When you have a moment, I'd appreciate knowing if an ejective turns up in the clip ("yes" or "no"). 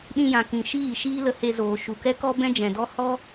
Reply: no